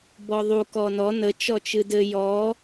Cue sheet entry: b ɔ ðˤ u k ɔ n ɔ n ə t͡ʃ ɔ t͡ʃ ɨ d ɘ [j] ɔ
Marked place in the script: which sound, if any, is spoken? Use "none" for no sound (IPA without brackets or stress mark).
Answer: j